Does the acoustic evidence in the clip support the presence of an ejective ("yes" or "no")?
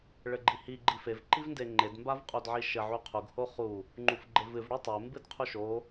yes